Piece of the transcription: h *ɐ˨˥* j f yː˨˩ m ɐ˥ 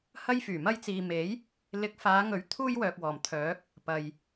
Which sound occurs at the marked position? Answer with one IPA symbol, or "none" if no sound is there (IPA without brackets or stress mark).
ɐ˥